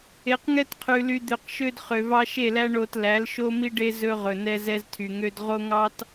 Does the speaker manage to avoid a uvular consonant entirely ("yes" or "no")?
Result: no